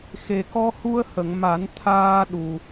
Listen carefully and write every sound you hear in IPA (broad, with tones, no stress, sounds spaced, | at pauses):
x e˨˩ k ɔ˧ h u˧ ə̯ h ə˨˩˨ ŋ m a˨˩˦ n t̪ʰ aː˧ ɗ u˨˩